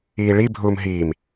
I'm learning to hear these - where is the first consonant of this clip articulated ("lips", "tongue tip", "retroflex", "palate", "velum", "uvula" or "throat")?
retroflex